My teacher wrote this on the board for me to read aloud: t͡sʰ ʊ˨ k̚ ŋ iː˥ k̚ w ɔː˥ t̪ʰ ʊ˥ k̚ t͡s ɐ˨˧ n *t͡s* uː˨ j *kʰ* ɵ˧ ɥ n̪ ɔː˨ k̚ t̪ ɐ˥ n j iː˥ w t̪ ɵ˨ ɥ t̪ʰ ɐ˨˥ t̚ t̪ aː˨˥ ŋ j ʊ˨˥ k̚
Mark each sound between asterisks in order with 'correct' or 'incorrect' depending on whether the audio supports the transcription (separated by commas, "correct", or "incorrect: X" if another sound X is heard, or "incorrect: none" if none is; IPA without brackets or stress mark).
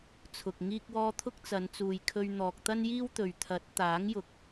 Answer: correct, correct